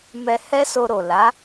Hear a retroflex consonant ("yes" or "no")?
no